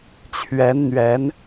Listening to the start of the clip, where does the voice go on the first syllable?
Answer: rising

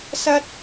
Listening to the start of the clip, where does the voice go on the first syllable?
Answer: high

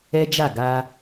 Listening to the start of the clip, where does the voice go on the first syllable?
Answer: high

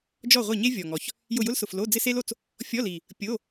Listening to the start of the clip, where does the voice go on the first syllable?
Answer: falling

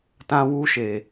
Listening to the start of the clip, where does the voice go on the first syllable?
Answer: high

